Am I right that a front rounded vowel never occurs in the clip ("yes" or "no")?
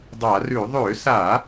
no